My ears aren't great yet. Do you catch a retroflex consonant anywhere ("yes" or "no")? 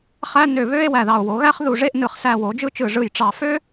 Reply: yes